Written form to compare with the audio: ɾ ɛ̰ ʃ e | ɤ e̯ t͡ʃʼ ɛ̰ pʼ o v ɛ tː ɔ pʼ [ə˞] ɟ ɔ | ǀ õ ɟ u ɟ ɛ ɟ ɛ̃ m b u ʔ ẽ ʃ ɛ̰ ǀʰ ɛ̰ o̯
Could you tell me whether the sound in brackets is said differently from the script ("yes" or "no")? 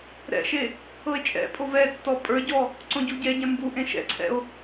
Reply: no